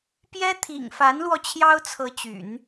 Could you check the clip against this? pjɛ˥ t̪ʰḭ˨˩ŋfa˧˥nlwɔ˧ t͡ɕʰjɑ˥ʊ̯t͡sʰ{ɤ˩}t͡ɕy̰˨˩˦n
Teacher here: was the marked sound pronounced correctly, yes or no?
no